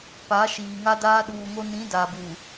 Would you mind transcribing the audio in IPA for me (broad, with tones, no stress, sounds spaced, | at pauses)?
p a˨˦ ʃ iː˨ ŋ a˦ d aː˦ ɗ uː˨ ŋ o˦ n ĩ˨˦ d a˨ b uː˨